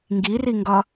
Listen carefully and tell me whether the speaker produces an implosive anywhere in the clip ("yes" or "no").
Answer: no